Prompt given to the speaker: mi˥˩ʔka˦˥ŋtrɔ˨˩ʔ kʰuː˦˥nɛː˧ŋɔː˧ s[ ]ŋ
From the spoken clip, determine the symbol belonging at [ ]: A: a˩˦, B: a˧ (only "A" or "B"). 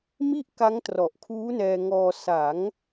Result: A